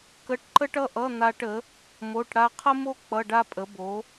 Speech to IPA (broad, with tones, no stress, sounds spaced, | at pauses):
k ə˧˥˧ ʈ ǃ ə˥ ʈ ʌ˥ ʔ ʌ˧˥˧ n̪ a˥ ʈ ə˩˥ | m o˧˥˧ ʈ ɽ a˥ qʰ ə˥ m o˥ k͡p ʌ˧˥˧ ɖ a˥ pʼ ə˩˥ b o˩˥